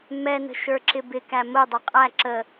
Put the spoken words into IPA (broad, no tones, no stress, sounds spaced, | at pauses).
m ɛ n ə̤ ʃ ə˞ ǁ ɪ b ɪ k æ m ʊ dˤ ɪ qʼ æ ǁ ə